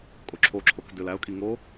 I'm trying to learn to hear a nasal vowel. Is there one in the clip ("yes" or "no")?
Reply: no